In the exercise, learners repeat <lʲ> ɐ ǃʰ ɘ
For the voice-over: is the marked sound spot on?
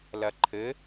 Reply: no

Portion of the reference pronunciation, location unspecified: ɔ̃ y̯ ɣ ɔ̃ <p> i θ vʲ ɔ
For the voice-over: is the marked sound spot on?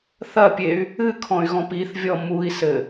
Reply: yes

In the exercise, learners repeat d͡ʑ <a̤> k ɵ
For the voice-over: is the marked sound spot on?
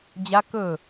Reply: no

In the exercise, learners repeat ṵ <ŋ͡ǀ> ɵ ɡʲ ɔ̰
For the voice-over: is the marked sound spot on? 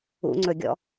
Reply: yes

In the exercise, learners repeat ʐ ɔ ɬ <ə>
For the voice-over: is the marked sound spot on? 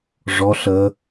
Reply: yes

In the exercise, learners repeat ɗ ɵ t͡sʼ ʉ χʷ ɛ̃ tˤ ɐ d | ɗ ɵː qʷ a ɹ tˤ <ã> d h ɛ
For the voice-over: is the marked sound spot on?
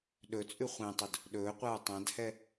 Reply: yes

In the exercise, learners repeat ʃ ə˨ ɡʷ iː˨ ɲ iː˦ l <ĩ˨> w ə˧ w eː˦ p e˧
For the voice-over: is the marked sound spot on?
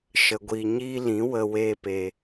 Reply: no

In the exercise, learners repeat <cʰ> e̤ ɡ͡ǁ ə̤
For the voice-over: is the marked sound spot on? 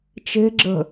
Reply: no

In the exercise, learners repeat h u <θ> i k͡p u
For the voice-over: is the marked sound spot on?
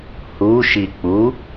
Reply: no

